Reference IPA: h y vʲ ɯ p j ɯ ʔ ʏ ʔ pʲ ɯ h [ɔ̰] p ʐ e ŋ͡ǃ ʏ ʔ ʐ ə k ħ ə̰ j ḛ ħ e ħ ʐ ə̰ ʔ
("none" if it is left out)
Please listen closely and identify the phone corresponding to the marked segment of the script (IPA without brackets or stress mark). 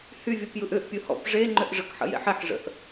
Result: ɔ̰